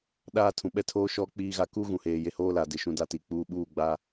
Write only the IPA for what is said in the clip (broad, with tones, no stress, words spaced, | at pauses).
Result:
ɗaː˦tʰũ˨ ɓɛ˦tʰoː˦ʃɔ˦ k͡piː˦ɣa˦ ku˦ɣũ˨heː˨ je˦ hoː˦la˨dɪ˨ ʃũ˦da˦ti˨k͡puː˦ ɓuː˦˨ɡ͡ba˦